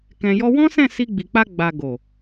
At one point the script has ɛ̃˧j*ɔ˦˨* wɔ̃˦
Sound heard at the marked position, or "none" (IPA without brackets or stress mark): ɔ˦